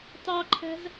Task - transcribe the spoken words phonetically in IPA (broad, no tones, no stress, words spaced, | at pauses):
tɑǃʰæ̤z